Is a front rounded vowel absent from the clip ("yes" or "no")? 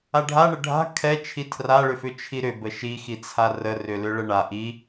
no